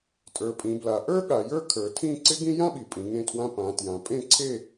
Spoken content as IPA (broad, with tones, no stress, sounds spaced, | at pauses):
tʼ ə˞˩˧ pʼ ĩ˩˧ b l a˩˧ ʔ ə˞˥ ɠ a˩˧ j ə˞˥˨ kʰ ə˞˩˧ tʰ ĩ˥˨ ǀ ɪ˥ ɡ ĩ˥ j ã˥ ɓ i˩˧ pʼ ĩ˩˧ ŋ ẽ˥˨ tʰ w ã˥ p ã˩˧ t j ã˩˧ pʼ ẽ˥˨ ǀʰ e˥˨